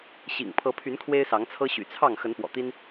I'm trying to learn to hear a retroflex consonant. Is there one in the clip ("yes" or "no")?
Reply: no